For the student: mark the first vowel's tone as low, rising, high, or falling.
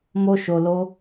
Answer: high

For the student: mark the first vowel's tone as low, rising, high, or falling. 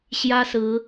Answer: high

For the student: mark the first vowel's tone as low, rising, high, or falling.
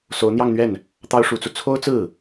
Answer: rising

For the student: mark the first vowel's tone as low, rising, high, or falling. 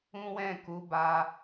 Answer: high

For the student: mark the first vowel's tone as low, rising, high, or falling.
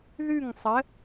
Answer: falling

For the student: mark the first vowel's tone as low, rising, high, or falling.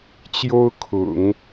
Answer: high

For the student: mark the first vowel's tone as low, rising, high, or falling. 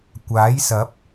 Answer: rising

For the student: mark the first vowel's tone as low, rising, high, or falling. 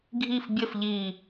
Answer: falling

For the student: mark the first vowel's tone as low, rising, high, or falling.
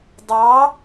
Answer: rising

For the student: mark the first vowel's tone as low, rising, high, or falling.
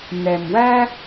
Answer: low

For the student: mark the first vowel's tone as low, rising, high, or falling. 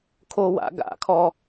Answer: high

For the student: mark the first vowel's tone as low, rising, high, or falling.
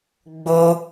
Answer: high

